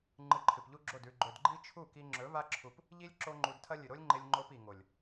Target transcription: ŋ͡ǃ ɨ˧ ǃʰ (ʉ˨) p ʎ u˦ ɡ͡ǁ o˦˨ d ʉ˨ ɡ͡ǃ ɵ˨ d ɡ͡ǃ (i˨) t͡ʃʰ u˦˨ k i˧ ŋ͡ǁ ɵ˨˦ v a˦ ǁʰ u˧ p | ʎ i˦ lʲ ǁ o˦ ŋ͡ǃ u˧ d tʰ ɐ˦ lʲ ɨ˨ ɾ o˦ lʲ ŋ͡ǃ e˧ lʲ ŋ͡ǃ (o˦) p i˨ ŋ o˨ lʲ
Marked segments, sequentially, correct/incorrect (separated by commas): incorrect, incorrect, incorrect